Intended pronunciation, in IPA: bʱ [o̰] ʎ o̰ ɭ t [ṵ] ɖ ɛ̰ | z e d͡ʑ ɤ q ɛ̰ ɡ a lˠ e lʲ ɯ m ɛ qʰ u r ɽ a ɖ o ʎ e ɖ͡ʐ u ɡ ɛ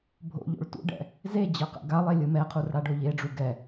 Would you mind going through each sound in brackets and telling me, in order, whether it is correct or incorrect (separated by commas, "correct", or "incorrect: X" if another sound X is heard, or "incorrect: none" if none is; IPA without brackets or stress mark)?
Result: correct, correct